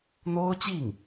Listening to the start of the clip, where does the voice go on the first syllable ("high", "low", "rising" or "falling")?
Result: high